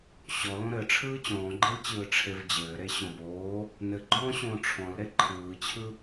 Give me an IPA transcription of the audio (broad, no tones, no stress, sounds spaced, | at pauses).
ɕ ɔ l õ ɾ ɘ ʈ͡ʂʰ ɯː t͡ɕ ɔ̃ː ɡ͡ǃ e l t͡ɕ ɯː ʈ͡ʂʰ e v d͡ʑ ɘː ɾ e ɕ ɔ̃ b oː | n ɘ ɡ͡ǃ ɔ̃ː ɕ õː ʈ͡ʂʰ ɔ̃ l ɾ e ǃʰ ɯː t͡ɕʰ ɯ